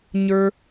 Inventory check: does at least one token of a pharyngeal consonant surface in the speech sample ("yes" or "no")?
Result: no